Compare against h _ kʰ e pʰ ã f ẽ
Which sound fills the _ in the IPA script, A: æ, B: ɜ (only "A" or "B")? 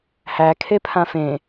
A